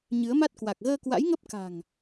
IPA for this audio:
ɲ ɨ˨˦ ə̯ m a˦˥ t̚ k w a˨˩ k̚ ɣ əː˧ k w a̰˧˥ j ŋ ə˦˥ p̚ k a̤˨˩ ŋ

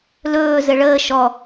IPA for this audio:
l ɵː z ɘ ɭ əː ʃ ɔ

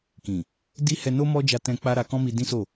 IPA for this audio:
k ĩ˨ | d i˦ h ɛ˧ n o˦ m ɔ˦ d͡ʒ a˧ t ɛ̃˧ k͡p a˦ ɾ a˧ k ɔ̃˦ m i˧ d ĩ˦ s o˦˨

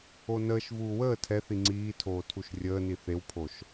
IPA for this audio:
o n əː ʃ v uː w əː tʰ ɛ θ i ŋ͡ǀ iː tʰ oː tʰ u ʃ rʲ əː n i θ e w pʰ o ʃ

